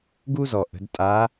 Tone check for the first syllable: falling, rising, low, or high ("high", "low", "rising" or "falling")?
high